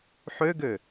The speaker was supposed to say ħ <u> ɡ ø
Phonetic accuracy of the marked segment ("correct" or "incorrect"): incorrect